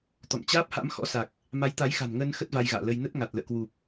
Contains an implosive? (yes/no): no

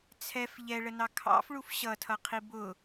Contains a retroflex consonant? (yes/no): yes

